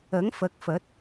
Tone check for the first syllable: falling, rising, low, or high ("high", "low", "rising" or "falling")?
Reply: rising